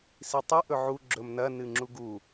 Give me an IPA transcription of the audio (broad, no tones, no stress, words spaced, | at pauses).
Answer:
sitˤɨ ʔɵʕu ɡ͡ǁɵmnɐ nɨŋ͡ǁuɡu